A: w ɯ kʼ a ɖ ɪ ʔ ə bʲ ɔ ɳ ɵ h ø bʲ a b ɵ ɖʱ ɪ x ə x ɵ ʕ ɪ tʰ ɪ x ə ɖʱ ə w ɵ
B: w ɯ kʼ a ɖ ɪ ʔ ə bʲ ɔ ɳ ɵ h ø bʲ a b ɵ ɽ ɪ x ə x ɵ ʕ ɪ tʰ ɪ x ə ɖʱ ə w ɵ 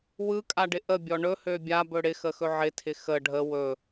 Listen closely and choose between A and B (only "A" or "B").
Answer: B